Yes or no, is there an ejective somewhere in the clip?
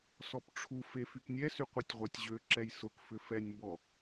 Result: no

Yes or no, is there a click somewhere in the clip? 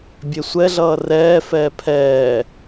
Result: no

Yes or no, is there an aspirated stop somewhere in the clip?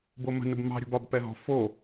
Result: no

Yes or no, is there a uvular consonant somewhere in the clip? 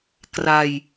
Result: no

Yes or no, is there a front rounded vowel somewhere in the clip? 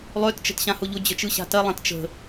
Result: yes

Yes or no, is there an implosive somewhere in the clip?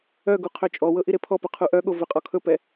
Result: yes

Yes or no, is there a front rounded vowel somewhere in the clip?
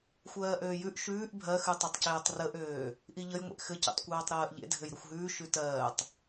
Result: yes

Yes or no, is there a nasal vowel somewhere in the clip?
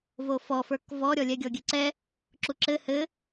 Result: no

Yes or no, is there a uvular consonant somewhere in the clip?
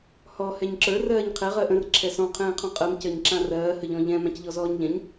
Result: yes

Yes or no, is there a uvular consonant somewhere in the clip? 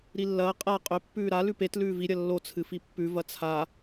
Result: yes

